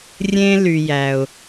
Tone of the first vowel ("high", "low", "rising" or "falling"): high